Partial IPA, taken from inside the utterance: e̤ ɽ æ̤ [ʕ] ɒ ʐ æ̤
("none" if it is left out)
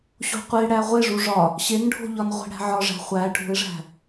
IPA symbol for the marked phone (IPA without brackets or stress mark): ʕ